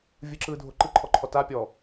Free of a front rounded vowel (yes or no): yes